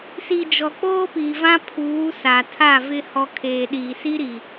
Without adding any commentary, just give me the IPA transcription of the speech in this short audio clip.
si˨ d͡ʒɔ˨k͡poː˦pi˨vã˦ pʰuː˨˦ sa˨tʰa˦˨vɪ˦ hɔ˦ kʰeː˨ɗi˨si˦ɾi˨

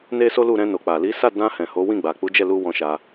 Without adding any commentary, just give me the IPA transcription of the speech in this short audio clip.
ne˦so˦lu˦˨ ɾɛ̃˧no˨k͡pa˨li˨˦ sa˦˨dã˧ hɛ̃˨ ho˨˦wĩ˦˨ ɡ͡ba˨k͡pu˨˦d͡ʒɛ˦˨lu˧ wɔ̃˧ʃa˧

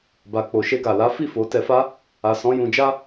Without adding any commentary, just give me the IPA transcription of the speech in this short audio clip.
ba˨ k͡po˨ʃe˧ɡa˨la˨˦ fi˦˨ fo˨˦tɛ˧fa˦ | a˨sɔ̃˨˦ jũ˧d͡ʒa˦

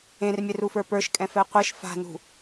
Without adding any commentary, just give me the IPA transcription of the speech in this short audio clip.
ẽrmʲɛrufə˞ pə˞ʃkʼɛ̃fɛ qʷeʃ fa̤nṳ

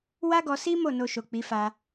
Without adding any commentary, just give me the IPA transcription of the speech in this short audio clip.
wa˦ɡɔ˧si˦ mo˦˨ no˧ʃo˨k͡pi˨˦ fa˧

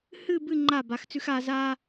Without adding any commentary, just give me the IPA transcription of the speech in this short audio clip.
hɨ˥˧ bɨ˥˧ ŋ͡ǃa˧˩ ba˩˧xt͡sʉ˧xaː˧ zaː˧

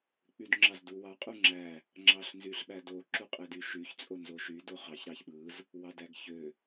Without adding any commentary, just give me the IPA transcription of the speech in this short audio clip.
k͡pydŋ͡ǁɑzduwɑ qʼuŋ͡ǁæ | ŋ͡ǁɑɬnzyɬɓædo ǁuqʼedyʃyç t͡sʼonzoʃy doχɑç ɾɑçɓɯz | wɑdæɡçø

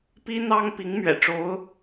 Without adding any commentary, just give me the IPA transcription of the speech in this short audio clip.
pi˥n̪ɑ˥ŋ pi˧˥ŋmɥɛ̰˨˩ ʈ͡ʂo˧˥ʊ̯

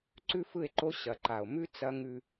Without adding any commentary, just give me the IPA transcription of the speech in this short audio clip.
ǀʉ˦fɯ˦˨e̯ǃo˦ ɕɐ˨ǃa˨o̯ mʉ˦ t͡sɐ˦ŋʉ˦

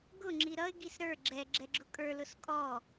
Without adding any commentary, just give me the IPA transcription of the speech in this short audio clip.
ɡʊ ŋ͡ǁiɾʌɪ̯ ɡisɾə˞ ɡ͡ǁɛ ɡ͡ǁɛɡ͡ǁʊkʼə˞ lʊskʼɔ

